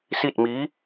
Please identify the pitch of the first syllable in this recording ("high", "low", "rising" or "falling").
falling